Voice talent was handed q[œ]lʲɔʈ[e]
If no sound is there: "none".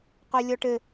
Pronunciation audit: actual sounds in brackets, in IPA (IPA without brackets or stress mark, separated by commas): œ, ɘ